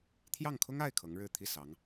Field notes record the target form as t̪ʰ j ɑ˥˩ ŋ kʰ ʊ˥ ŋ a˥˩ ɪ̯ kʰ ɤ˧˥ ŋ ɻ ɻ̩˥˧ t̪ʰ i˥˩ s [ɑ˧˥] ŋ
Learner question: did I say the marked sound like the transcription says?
yes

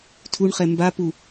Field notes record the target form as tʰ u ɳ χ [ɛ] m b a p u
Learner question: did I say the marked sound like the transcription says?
yes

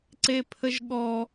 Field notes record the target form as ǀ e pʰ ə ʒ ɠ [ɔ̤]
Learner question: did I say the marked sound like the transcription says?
no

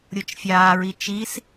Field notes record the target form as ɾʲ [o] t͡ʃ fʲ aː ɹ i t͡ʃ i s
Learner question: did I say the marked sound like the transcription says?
yes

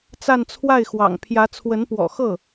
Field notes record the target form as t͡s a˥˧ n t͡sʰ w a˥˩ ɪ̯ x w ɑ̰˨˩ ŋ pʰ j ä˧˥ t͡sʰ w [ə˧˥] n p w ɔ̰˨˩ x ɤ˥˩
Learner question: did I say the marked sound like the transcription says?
yes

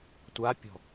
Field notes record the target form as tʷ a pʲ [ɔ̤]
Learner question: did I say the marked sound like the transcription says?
yes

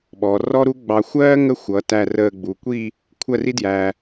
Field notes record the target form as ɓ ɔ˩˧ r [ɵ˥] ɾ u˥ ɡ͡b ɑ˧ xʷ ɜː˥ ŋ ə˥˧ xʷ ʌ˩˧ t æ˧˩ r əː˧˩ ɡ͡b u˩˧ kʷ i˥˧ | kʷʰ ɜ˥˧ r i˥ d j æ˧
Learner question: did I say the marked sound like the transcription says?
no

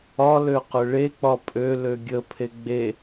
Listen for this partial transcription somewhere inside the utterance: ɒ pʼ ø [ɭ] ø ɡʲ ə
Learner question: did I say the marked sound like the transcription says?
no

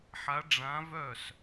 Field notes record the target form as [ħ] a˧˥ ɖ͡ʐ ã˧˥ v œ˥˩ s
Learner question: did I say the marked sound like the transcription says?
yes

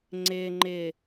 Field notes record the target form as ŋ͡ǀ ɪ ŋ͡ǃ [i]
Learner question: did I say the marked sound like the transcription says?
no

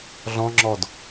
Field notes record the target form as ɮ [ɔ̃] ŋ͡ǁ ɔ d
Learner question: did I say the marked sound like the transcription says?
yes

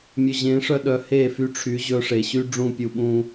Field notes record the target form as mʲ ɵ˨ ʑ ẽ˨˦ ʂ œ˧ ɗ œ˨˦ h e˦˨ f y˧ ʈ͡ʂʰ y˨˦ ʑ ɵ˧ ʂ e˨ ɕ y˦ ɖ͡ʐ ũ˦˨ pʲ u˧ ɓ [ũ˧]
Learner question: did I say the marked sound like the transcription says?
no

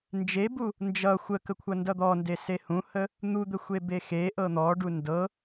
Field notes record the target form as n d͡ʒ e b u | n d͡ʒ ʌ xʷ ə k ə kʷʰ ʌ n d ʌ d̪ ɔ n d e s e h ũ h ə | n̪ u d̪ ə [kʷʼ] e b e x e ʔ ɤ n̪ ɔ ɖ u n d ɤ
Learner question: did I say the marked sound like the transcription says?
no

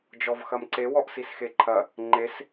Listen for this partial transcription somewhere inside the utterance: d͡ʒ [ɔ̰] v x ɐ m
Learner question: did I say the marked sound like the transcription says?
no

